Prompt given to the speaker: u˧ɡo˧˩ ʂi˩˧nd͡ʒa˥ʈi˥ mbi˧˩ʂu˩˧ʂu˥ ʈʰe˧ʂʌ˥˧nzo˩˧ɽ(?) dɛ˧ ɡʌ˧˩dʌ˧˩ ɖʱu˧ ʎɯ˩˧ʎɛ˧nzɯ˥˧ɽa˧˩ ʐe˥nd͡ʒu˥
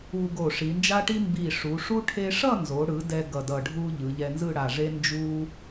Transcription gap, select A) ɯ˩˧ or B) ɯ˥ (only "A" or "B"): A